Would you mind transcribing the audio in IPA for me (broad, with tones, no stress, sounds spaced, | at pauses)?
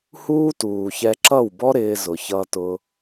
h uː˦ t uː˨ ç ɛ˧ ǁ ʌ˦˨ w b ɔ˦ ɾ ɪː˧ z ʊ˨ ç ʌ˧ t ʊ˧